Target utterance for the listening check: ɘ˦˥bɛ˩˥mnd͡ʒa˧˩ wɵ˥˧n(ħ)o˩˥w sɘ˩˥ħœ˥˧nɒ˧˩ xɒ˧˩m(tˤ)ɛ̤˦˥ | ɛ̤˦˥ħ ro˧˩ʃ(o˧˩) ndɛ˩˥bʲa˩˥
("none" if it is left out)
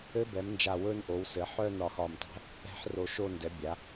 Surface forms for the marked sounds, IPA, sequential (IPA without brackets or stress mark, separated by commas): ʔ, tˤ, o˥˧